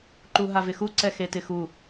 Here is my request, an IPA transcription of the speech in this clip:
ǃuɦavɪxu ǀɛxetɪxu

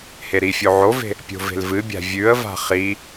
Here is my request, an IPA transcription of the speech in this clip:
heɾifʲo ʕove̤ | pʲo̤ve̤lvɨbʲa̤ vʲʉə̯va̤ χi

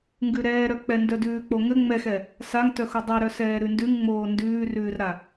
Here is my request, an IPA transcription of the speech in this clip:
ŋɡʉɾɛːɾœk͡pɛ ndœdʉːk͡poŋɘ ŋ͡mɛxɛ | saŋtœxo dˤɛɾœsɛː ɾʉndʉŋŋ͡moː ndʉːrʉːrɾa

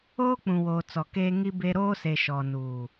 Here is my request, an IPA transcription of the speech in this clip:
oː˦ k͡pũ˨woː˨t͡sɔ˨keː˦ ŋi˦be˦ ɾoː˦se˨ ʃɔ˨nuː˨

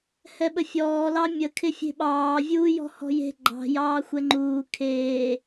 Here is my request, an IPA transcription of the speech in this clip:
hɛɓəfʲɔː lɑmʲə kʰɪfʲe̤ɓɑː vʲuːjɔ̤hɔ̤je̤ ɡ͡ǃɑ̤ jɑːxʷɛŋ͡ǃuː kʰeː

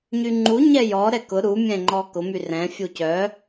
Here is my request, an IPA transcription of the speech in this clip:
ɲyŋ͡ǃu ɲɛjɔ ɾɛkʊ ɾu mʲɛ̃ŋ͡ǃɔkʊ myrɛ̃ fʲucœ

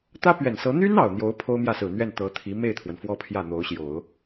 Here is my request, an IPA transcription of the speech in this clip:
t̪ä˥pɥɛ˨˩nsɤ˧˥ n̪y˥n ɑ˨˩ʊ̯n̪jo˧˥ʊ̯ pʰo˥ʊ̯mjä˥˩sɹ̩˨˩n̪ɥɛ˥˩n t̪ɤ˧˥t̪ʰi˧˥ me˥˩ɪ̯t̪ʰwə˩n fwɔ˥pʰjä˥˩n̪o˧˥ʊ̯ɕjo˨˩˦ʊ̯

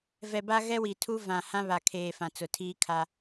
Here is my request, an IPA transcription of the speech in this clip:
vɛ˨ba˦ɣɛ˦wi˨ tʰu˦vã˨ hã˦βa˨kʰeː˨ fã˨t͡sʊ˨ tʰiː˦kʰa˦

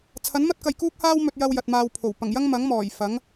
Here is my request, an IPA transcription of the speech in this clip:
t͡sʰɐ˨˥nmɐ˥t̚kɐ˨j kuː˥k̚haː˥wmɵ˧t̚jɐ˧w jɐ˨t̚maː˧wpʰo˨˩w pɐ˨˩ŋjɐ˥ŋmɐ˨˥ŋ mɔː˨˩jfɐ˨˥ŋ

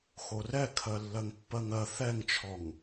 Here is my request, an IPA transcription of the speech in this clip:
xorɛkʰɜ lːɜŋpːɜŋɜ θɛŋt͡ʃʰɔŋ

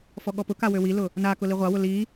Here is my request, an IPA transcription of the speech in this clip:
fɔɠɔpʊka wøwilʊ | nakʊ liʁʷawʊ li

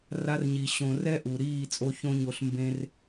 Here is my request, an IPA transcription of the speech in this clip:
ra˧rɲi˨ ɕõ˨ rɛ˦ʔu˨ɾiː˦˨t͡sʼo˧ çõ˦ɲo˧ɬ mbẽ˦r

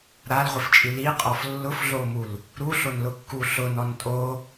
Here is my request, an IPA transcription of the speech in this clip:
ɾalʁʷɪft͡ʃʼi liqʼɔf lːʊfɮomul | ɾuɬonlʊkːu ɬʊnɔn tʼo

